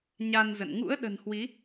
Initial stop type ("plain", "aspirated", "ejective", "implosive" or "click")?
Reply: implosive